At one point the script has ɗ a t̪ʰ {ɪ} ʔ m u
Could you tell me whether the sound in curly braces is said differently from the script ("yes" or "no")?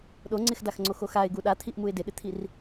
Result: yes